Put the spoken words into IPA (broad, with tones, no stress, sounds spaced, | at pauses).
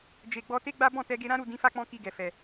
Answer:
d͡ʒ e˨ ɡ͡b ɔ˧ t e˦ ɡ͡b a˦ b ɔ̃˦˨ t ɛ˧ ɡ e˧ ɾ ã˦ ɾ u˦˨ d ĩ˨˦ f a˦˨ k͡p ɔ̃˧ k i˧ ɡ ɛ˨ f ɛ˨